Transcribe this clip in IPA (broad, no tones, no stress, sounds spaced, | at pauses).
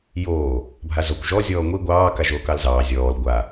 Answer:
j oː | bʱ a z ɔ kʷ ʒ ɔ zʲ ɔː ŋʷ i ɡʷ ɑː k a ʒ oː k ɑ l z ɑː zʲ ɔː l ɡʷ a